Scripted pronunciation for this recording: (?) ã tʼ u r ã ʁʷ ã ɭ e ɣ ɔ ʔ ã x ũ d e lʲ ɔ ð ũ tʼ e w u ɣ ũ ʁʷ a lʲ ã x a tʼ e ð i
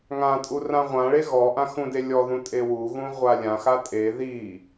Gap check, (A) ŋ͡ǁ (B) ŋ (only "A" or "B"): B